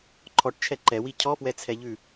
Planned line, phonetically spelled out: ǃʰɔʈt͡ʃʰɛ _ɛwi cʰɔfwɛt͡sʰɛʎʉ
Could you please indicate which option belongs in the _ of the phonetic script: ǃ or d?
ǃ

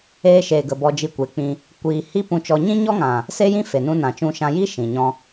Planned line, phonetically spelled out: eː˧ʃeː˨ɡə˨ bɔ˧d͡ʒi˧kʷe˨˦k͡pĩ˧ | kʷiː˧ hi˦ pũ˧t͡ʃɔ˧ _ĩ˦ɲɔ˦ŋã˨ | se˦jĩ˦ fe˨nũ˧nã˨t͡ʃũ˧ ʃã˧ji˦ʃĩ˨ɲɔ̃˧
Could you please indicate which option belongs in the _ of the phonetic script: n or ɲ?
ɲ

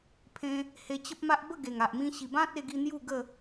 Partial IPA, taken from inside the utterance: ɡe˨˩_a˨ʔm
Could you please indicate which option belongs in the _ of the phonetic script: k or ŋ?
ŋ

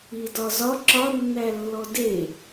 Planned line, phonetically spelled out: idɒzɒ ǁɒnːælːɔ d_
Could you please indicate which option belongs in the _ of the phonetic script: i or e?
e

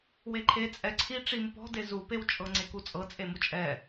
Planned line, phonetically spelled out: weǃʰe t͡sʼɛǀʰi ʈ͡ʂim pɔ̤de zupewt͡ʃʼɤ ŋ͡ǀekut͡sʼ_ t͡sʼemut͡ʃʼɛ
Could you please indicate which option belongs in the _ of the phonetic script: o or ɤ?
ɤ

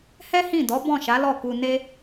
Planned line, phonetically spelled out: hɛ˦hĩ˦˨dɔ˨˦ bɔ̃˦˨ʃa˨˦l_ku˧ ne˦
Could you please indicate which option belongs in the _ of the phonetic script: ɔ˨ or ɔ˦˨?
ɔ˦˨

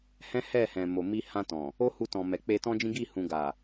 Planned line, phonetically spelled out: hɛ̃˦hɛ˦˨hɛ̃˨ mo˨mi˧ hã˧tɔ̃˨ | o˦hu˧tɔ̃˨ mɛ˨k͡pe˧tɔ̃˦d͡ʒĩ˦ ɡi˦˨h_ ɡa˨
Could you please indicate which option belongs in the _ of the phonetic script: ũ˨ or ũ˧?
ũ˨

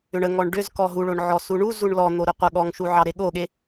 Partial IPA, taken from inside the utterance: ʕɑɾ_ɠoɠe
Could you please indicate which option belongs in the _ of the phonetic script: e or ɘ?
e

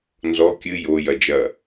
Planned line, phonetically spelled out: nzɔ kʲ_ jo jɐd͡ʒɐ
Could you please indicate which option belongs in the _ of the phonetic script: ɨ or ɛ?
ɨ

